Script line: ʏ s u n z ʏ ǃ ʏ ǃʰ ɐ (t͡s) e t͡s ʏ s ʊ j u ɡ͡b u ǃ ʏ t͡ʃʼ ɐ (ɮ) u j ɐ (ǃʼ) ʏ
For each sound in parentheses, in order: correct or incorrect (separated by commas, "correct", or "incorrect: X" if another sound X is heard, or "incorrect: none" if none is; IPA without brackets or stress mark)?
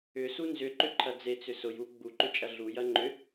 incorrect: d͡z, correct, incorrect: ŋ͡ǃ